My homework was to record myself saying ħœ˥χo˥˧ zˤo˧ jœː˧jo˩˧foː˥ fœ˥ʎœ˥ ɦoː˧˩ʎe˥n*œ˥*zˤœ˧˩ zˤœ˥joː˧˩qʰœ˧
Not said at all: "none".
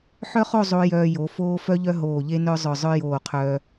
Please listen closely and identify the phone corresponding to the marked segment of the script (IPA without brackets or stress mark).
œ˥